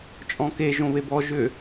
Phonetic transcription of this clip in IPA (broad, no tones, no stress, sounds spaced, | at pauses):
t͡ʃʼ ɔ̃ k e ʒ õ β e b ɔ ʒ ʏ